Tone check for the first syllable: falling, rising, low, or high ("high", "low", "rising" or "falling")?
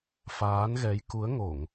rising